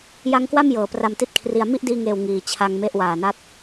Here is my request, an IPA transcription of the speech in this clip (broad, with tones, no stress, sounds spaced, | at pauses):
j a˦˥ ŋ k w a˥˩ m j ɤː˨˩ p r a˧ m t i˦˥ t̚ kʰ r i˧ a̯ m i˥˩ ʔ d iː˧ ŋ eː˨˩ w ŋ iː˨˩ t͡ɕʰ a˧ ŋ m e˦˥ ʔ w aː˨˩ n a˦˥ t̚